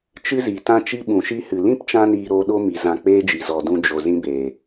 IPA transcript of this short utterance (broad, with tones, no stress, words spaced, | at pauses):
t͡ʃɨ˦zi˨tã˦ t͡ʃi˦ɓũ˨ʃi˦hɨ˨ lĩ˦pt͡ʃã˧niː˨ ɾoː˧ɗo˦mi˨ zã˧k͡peː˦d͡ʒi˨ zɔ˨ dũ˧ d͡ʒo˨ zĩ˦beː˨